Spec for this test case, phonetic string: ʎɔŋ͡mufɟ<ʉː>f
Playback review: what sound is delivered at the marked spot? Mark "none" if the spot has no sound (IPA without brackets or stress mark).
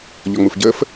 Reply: əː